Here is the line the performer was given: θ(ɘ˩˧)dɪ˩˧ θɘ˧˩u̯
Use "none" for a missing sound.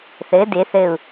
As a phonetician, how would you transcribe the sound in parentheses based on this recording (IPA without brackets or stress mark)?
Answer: ɘ˩˧